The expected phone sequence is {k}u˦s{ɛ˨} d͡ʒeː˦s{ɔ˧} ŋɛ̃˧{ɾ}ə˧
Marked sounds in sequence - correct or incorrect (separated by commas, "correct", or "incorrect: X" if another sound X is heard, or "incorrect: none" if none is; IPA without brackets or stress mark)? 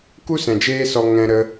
correct, incorrect: ɛ̃˨, correct, correct